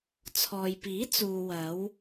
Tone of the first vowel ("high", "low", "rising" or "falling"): low